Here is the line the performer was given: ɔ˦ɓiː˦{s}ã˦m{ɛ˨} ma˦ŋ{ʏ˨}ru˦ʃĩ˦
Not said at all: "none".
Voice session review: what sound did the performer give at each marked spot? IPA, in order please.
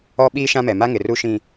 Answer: ʃ, ɛ˨, ɪ˨

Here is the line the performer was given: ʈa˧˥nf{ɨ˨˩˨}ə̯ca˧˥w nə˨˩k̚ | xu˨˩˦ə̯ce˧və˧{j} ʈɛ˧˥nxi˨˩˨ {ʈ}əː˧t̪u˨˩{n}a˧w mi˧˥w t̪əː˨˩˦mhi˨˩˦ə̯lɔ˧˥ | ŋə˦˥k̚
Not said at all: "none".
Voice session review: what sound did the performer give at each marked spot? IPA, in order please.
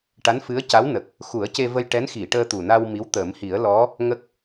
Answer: ɨ˧˥, j, ʈ, n

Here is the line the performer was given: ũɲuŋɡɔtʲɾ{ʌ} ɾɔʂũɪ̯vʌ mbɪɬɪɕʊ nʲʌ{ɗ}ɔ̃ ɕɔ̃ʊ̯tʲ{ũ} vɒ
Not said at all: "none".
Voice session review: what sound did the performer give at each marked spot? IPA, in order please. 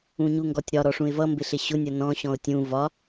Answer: ɒ, n, ũ

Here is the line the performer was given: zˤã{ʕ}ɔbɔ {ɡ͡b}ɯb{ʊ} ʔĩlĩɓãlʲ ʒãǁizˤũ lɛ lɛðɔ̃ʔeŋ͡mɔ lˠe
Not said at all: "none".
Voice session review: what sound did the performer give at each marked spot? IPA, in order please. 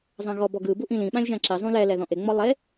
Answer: ɣ, ɡ, u

